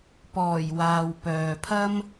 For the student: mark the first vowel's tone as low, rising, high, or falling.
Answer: low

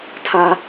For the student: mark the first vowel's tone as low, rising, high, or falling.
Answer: high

